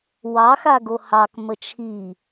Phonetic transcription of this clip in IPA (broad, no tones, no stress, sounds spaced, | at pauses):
w ɑ x a ɡ o h ɑ k m ə t͡ʃʰ i